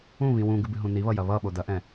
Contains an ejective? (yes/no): no